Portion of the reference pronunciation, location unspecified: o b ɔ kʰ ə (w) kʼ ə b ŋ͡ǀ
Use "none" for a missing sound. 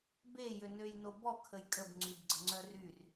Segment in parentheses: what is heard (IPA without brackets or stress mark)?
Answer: j